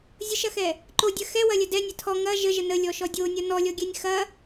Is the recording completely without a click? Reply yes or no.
no